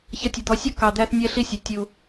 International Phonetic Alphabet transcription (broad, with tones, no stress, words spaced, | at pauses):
çʌ˧tʲʌ˨d̪ɔ˨˦sʲɔ˦ kɑ˨d̪æ˧θnʲɛ˧ ɬi˦sʲɛ˨ tʲu˧